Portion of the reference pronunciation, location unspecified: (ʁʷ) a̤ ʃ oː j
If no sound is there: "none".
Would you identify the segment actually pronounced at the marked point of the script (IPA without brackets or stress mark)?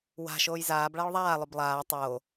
w